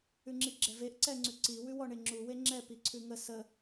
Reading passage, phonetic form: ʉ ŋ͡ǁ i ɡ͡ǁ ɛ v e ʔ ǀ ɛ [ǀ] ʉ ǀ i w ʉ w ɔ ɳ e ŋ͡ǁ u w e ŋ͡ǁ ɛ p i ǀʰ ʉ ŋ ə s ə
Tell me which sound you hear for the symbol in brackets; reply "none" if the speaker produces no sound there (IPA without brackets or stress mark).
ŋ͡ǀ